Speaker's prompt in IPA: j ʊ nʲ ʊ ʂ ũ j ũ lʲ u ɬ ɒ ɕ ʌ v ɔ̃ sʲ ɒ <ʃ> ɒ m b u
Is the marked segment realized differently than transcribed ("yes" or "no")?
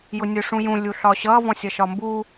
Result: no